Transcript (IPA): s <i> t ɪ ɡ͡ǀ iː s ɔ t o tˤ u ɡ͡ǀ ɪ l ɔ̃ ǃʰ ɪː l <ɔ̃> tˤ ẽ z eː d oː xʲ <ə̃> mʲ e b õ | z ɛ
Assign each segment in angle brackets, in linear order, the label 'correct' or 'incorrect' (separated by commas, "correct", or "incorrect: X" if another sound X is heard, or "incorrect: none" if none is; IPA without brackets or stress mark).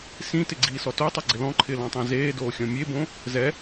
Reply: incorrect: ĩ, correct, incorrect: ɔ̃